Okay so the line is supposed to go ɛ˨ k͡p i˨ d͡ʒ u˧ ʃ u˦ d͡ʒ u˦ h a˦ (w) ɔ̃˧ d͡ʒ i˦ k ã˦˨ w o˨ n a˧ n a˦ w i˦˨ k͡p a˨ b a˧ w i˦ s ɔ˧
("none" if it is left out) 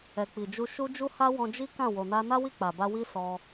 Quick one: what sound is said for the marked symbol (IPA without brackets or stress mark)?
w